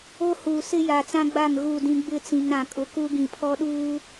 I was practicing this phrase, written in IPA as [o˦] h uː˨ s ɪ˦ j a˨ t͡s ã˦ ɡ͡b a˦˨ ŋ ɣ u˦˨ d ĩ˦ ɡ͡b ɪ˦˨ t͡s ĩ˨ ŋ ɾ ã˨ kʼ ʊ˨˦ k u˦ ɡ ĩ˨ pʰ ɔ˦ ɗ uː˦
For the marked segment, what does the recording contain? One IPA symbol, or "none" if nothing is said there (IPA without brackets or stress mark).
o˦